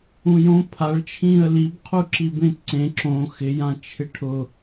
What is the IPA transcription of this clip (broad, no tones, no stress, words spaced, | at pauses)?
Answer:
ũjõ pʰaɭ t͡ʃʰĩːə̯libqʰu ǁibẽtǀẽ ǁõ xɪjãt͡ʃʰɪ ʈʰʊ